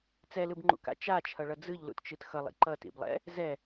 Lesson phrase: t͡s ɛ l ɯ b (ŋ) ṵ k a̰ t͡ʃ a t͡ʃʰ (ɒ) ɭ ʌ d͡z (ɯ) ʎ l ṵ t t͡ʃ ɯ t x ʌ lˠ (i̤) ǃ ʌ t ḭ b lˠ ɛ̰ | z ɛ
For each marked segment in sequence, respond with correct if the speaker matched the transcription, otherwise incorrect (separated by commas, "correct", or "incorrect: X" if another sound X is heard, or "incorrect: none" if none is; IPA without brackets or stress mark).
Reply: incorrect: ŋ͡ǃ, incorrect: ʌ, correct, incorrect: ḭ